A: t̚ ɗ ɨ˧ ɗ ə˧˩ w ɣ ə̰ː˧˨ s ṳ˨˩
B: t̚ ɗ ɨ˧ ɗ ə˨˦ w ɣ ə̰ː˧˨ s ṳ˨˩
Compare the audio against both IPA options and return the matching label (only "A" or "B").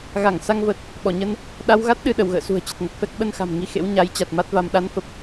A